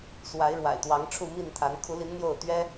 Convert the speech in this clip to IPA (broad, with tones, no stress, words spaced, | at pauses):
swa˨˦ɪ̯ɻwa̰˨˩ɪ̯t̪wɑ˨˦ŋ ʈ͡ʂʰu˥˨mi˥˨nt̪ʰa˨˦n kʰu˨˦li˨˦n n̪jo˥˨ʊ̯ t̪ɥɛ˦